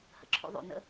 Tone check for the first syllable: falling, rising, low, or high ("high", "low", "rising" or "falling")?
low